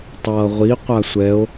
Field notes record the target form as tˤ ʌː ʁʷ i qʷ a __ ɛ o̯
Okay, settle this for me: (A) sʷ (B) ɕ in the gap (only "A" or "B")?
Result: A